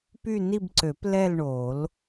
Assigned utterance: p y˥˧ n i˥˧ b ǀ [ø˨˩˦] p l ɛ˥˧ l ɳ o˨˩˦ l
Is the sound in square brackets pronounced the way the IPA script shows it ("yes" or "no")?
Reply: yes